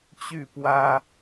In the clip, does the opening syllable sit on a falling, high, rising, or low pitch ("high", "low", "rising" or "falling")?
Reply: falling